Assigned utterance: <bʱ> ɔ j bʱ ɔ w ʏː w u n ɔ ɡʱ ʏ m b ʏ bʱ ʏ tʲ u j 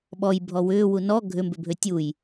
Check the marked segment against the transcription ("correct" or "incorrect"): incorrect